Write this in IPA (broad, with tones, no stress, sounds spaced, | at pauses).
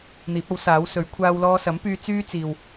n̪ iː˨˥ p̚ ɐ˨˥ w s aː˨˥ w s ɵ˨˥ ɥ kʷʰ aː˧ w l ɔː˧ s ɐ˨˥ m p yː˧ t͡s yː˥ t͡s iː˨ w